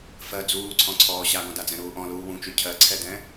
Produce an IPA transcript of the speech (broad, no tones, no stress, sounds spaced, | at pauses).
f ɜ d͡z uː ǀʰ ɔ̃ ǀʰ ɔː ɕ a ɡ ɔ̃ d a d͡z ɛ̃ ɾ uː ʔ ɔ̃ l uː w ũ t͡ʃ y cʰ ɜ ǀʰ ɛ d ɛ̃